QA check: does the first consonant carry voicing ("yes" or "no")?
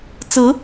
no